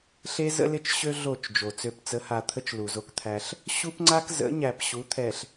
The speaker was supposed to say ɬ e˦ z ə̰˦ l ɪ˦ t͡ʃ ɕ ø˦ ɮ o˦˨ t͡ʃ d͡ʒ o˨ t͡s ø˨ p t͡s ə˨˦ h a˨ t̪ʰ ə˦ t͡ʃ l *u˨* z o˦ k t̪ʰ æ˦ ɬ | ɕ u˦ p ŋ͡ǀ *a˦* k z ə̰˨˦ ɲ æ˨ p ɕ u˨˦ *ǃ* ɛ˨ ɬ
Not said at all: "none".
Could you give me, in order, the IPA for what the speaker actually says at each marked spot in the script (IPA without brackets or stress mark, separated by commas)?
u˨, a˦, t̪ʰ